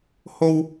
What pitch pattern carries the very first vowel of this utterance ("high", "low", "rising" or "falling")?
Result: high